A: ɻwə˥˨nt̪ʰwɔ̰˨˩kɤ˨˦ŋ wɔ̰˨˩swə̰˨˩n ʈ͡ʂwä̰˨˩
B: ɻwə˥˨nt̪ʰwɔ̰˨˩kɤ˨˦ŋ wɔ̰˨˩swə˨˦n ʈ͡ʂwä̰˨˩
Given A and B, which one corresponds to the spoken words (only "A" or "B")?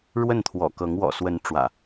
B